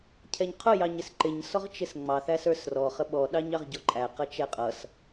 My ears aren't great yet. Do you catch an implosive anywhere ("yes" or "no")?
yes